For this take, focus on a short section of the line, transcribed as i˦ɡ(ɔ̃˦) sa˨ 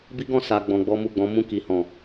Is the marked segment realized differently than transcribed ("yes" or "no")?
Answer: yes